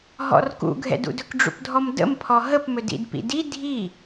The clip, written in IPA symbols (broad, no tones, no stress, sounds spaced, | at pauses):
ɦ ɔ̰ r k ṵ ɡʱ ɛ̰ d ṵ d ɵ k ɖ͡ʐ ṵ p dʱ ɔ m d ə̰ m pʰ ɔ ɦ ə p m ɵ d ḭ d p ḭ d i dʱ i